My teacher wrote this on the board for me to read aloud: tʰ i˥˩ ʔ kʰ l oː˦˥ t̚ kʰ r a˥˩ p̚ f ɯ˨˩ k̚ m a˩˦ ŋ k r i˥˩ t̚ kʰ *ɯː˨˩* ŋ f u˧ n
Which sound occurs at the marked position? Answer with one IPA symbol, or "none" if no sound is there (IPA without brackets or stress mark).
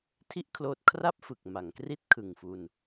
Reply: ɯ˨˩